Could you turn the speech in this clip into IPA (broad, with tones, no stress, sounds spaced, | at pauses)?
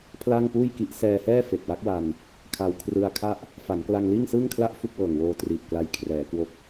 pʰ l aː˥˩ ŋ p uː˥˩ j k i˦˥ ʔ s ɛː˧ h ɛː˥˩ f e˨˩ k̚ w a˦˥ k̚ w a˧ n | kʰ a˧ w kʰ r ɯ˧ a̯ kʰ a˥˩ ʔ | f a˩˦ n k l a˧ ŋ l iː˥˩ ŋ s ɯː˥˩ ŋ kʰ l a˥˩ ʔ f u˥˩ k̚ w ɤː˨˩ ŋ w oː˧ t r iː˨˩ p̚ k l a˧ j kʰ r ɛː˩˦ k w o˦˥ k̚